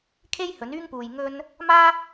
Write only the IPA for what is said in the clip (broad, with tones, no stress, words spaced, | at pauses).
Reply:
kʰe˥jhɵ˨˥nyː˥ŋ puː˧j ŋɵ˥n | maː˥